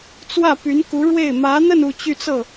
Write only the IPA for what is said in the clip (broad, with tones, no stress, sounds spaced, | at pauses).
t͡s w ä˥˩ p y˧˥ n k u˧˥ ɻ w e˥˩ ɪ̯ m ä˧˥ n̪ ə˥˧ n u˥˧ t͡ɕ y˥˧ t͡s ɤ˥˩